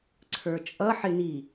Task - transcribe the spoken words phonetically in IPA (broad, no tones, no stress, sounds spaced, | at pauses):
ǀʰ ə˞ t͡ʃʼ ʌ ħ ɪ n i